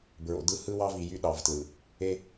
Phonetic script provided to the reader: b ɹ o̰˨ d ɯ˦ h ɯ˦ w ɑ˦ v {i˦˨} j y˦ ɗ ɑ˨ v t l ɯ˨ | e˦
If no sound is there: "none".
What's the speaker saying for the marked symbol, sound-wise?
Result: i˨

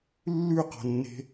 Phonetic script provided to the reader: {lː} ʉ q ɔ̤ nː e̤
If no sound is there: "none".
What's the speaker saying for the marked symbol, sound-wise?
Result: lː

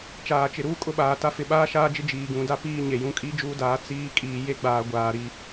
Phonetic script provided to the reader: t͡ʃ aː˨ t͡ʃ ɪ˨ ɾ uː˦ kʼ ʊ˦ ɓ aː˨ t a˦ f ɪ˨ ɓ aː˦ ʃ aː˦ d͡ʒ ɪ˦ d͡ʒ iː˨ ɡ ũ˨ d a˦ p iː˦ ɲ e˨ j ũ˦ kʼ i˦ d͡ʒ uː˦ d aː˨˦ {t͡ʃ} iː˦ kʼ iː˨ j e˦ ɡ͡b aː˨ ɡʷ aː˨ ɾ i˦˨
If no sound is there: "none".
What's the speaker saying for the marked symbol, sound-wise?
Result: t͡s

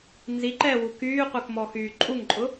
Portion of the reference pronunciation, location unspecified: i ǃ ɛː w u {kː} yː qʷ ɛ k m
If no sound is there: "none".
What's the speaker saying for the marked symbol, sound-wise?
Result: k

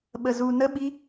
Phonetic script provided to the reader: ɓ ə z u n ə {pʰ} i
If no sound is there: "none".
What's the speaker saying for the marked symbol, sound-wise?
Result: ɓ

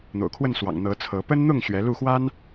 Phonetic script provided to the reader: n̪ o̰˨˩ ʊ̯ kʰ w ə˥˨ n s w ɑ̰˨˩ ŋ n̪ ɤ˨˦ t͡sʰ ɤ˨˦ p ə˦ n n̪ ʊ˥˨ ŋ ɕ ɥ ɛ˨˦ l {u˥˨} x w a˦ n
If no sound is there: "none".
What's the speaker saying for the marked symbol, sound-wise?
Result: u˥˨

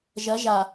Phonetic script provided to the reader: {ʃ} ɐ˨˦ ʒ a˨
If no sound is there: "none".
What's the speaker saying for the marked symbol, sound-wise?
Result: ʒ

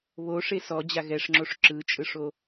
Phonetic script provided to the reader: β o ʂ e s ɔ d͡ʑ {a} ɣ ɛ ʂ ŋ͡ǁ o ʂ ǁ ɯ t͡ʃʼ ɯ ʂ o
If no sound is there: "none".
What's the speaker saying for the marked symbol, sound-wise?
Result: a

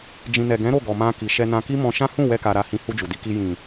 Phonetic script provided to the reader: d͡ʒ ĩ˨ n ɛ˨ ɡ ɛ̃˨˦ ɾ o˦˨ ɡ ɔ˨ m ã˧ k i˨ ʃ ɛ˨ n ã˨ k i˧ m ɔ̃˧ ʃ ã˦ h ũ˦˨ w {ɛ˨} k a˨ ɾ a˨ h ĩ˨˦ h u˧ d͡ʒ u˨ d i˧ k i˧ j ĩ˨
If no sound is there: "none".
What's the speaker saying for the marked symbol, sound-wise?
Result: ɛ˧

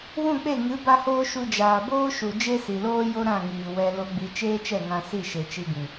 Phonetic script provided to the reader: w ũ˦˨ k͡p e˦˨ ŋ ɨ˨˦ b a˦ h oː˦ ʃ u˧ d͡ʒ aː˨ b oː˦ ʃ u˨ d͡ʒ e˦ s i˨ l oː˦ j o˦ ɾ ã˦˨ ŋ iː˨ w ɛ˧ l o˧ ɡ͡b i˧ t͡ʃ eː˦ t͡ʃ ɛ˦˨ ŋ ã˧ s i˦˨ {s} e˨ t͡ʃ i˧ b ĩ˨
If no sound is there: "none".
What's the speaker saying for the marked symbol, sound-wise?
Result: ʃ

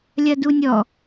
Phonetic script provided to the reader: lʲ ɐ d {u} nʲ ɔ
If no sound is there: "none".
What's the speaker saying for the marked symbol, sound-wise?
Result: u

